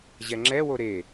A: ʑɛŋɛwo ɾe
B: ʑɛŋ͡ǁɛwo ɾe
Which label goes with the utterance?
B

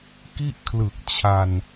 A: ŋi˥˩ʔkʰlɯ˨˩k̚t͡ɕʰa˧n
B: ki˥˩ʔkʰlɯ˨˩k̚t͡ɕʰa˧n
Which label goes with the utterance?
B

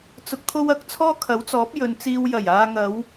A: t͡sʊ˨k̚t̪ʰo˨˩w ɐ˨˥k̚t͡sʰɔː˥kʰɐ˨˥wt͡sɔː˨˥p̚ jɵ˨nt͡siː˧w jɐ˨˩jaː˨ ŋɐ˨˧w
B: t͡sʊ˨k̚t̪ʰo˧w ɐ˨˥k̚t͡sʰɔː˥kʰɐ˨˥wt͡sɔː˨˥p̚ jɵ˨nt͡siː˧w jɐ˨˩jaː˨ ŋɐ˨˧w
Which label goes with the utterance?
B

